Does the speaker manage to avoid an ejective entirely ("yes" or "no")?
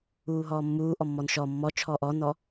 yes